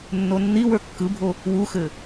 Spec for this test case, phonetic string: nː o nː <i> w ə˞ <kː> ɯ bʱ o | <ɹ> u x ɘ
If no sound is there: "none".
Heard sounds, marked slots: i, kː, w

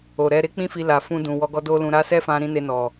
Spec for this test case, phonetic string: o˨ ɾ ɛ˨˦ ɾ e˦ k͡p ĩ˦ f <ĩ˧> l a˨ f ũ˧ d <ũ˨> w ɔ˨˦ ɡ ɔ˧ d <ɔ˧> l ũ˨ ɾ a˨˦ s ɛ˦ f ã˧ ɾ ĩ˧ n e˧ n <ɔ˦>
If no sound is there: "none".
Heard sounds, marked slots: i˧, ũ˨, o˧, ɔ˨

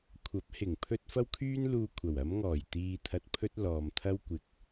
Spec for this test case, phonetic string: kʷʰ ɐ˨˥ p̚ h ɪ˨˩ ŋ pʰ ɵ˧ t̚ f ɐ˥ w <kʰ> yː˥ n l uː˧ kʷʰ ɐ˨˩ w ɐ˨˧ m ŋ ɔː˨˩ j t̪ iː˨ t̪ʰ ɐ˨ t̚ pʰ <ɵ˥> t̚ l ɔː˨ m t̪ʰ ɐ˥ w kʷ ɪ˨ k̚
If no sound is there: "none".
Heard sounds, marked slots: kʰ, ɵ˥

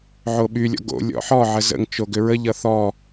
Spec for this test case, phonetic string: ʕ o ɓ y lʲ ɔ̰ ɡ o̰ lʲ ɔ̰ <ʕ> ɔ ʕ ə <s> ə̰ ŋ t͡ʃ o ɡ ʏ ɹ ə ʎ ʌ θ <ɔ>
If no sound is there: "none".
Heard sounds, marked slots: ħ, z, ɔ

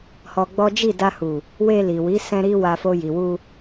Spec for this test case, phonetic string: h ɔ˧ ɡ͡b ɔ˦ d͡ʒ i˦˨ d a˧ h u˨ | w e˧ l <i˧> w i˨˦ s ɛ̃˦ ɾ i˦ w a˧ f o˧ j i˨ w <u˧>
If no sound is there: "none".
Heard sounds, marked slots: i˨, u˧

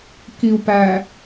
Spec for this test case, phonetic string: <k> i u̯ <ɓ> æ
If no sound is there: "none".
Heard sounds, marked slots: k, p

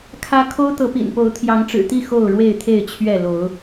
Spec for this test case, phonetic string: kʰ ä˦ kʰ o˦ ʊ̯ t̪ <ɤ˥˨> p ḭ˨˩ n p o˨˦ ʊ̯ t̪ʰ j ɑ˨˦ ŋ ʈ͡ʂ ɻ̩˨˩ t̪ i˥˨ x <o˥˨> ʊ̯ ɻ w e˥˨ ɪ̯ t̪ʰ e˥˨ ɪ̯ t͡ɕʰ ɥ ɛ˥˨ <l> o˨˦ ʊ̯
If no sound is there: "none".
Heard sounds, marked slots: ɤ˨˦, o˥˨, l

